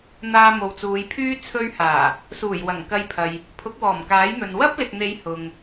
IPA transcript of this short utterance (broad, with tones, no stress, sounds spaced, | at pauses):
n̪ aː˧ m o˨ w t͡s uː˨˧ j pʰ yː˥ t͡sʰ ɵ˧ ɥ h aː˨˩ | s uː˨˩ j w ɐ˨˩ ŋ k ɐ˧ j pʰ ɐ˨ j | pʰ ʊ˨˥ k̚ w ɔː˨˩ m k aː˨˥ j n̪ ɵ˨ n w ɐ˥ p̚ l ɪ˨ k̚ n̪ e˨˧ j h ʊ˨ ŋ